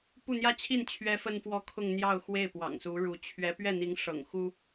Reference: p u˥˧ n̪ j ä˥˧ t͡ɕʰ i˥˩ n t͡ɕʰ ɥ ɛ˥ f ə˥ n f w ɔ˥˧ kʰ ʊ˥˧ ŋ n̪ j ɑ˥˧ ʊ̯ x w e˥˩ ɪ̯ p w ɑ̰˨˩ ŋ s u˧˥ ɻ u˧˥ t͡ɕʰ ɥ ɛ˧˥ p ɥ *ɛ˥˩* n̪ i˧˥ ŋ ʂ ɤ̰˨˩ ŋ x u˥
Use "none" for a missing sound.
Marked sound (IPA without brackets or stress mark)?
ɛ˥˩